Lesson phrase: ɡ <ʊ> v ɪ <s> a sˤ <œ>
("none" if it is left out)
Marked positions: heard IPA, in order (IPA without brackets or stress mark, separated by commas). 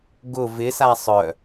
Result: ʊ, s, œ